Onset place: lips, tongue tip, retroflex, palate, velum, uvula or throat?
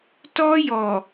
tongue tip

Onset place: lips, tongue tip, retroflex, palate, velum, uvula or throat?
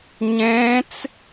palate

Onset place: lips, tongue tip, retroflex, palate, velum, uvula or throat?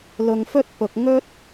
tongue tip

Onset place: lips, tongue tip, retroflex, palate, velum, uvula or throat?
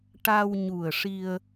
retroflex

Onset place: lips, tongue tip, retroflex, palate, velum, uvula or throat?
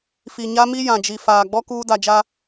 lips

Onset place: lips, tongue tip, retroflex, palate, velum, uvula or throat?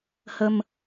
throat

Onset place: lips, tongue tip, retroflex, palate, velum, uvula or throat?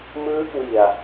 lips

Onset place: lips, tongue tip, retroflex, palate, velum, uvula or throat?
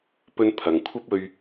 lips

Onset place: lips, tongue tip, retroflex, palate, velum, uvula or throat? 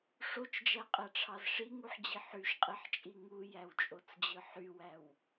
retroflex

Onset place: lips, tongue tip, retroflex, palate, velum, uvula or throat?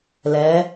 tongue tip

